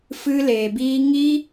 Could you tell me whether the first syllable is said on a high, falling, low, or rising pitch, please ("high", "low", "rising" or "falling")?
high